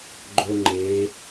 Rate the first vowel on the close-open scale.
mid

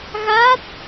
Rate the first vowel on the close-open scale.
open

